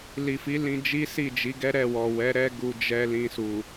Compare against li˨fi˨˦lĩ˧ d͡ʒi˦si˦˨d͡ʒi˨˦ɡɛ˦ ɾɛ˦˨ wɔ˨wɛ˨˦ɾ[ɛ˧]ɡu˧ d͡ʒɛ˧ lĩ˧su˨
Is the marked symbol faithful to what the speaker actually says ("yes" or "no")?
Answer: no